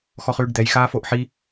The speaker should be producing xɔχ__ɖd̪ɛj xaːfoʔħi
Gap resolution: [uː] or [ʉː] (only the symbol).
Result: ʉː